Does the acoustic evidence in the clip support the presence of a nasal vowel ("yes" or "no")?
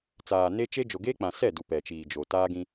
yes